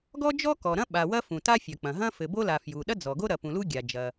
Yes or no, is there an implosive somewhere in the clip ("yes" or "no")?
yes